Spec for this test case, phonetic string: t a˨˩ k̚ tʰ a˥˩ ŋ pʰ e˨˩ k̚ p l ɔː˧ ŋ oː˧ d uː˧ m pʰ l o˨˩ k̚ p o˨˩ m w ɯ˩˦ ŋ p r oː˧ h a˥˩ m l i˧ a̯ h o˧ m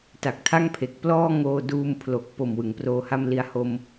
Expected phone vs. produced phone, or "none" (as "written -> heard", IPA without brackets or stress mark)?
none